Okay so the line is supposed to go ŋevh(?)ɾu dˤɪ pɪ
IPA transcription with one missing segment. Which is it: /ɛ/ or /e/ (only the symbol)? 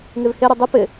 e